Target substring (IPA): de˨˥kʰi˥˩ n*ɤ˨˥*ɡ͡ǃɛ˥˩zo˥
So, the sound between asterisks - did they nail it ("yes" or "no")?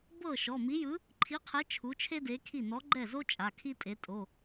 no